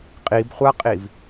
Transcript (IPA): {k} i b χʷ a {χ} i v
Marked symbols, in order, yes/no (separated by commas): no, no